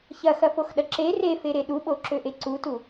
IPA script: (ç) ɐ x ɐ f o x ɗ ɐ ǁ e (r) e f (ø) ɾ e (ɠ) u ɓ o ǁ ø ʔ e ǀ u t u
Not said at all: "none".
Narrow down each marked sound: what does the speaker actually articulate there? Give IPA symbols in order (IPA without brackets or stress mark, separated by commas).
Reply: ç, r, e, ɗ